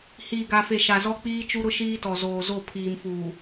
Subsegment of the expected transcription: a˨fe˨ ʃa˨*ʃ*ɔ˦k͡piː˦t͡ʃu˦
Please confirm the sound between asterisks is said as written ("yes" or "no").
no